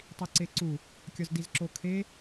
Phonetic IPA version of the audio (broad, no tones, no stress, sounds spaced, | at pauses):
tˤ i ǀ e ǀ u | kʲ ɒ z d i z ǁ o kʰ e